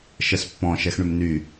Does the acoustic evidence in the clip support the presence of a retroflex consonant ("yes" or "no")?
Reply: yes